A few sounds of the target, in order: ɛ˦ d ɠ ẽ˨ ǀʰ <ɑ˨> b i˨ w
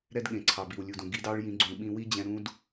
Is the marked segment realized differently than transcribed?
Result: no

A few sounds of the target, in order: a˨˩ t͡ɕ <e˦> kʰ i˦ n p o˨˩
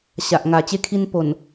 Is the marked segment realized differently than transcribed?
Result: no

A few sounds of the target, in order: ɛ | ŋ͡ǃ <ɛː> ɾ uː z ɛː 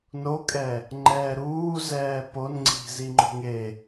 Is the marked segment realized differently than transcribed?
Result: no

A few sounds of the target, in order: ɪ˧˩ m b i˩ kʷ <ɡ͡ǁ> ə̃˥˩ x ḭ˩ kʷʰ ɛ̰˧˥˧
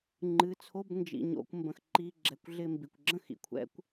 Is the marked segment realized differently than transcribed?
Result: no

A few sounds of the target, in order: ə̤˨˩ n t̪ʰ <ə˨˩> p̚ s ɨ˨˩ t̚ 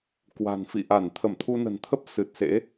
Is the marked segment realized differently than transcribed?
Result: yes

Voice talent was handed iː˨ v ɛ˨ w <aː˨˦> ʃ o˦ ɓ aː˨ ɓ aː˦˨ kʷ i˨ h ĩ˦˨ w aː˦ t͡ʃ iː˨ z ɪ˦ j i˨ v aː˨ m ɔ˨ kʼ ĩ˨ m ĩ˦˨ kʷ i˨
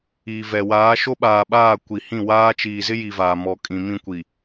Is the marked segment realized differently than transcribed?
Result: no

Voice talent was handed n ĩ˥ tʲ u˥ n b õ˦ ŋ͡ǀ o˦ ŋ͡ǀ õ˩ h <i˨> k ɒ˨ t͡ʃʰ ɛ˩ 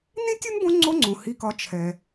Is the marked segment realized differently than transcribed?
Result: no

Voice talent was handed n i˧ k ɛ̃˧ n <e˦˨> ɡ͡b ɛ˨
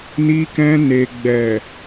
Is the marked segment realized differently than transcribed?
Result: yes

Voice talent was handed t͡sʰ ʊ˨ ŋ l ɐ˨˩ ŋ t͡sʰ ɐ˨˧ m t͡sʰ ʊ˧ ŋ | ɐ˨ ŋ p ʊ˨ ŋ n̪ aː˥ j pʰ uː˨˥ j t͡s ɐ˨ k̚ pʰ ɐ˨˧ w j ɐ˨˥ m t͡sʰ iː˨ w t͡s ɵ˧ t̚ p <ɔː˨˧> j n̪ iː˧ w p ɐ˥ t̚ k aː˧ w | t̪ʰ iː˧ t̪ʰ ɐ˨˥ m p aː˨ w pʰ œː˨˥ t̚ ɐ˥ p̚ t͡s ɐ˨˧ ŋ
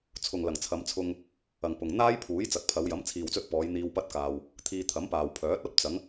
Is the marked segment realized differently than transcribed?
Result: no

